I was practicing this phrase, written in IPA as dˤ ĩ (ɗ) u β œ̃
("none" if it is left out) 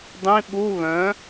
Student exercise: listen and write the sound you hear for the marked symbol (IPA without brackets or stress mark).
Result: ɓ